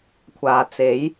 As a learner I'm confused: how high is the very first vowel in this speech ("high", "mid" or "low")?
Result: low